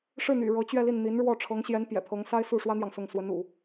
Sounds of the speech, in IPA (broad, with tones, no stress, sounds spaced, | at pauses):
ʂ ɻ̩˥˩ n̪ y̰˨˩ ɻ ɤ˧˥ t͡ɕ ɥ ɛ˥˧ l i˥˩ n n̪ i˧˥ n ɻ w ɔ˥˩ ʈ͡ʂʰ ɤ˧˥ ŋ ɕ j ɛ˧˥ n p j ɛ̰˨˩ pʰ ɤ˧˥ ŋ s a˥ ɪ̯ s u˥˩ ʂ w ä˥ n̪ j ɑ˨ ŋ s ʊ˥˩ ŋ s w ə˧˥ n ṵ˨˩˦